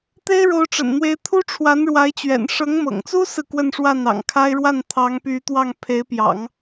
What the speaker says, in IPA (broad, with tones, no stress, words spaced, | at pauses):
t̪e˥ɪ̯ɻo˧˥ʊ̯ʈ͡ʂə̰˨˩nn̪we˧˥ɪ̯ t̪ʰu˥ʈ͡ʂʰwa˧˥n ɻwa˧˥ɪ̯t͡ɕɥɛ̰˨˩n ʂɤ˧˥ŋmɤ̰˨˩ŋt͡su˥sɹ̩˨ kwə˥˧nʂwa˥˩nɑ̰˨˩ŋkʰa˥ɪ̯ ɻwa˥˩nt̪ʰɑ˧˥ŋpy˧˥ t̪wɑ˥˩ŋ pʰe˧˥ɪ̯pjɑ̰˨˩˦ŋ